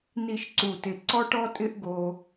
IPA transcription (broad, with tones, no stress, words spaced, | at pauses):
ni˥˧ʃǀu˧˩tɪ˧˩ ǀɔ˥ʈɔ˥tʼɪ˥ʔ ɡo˥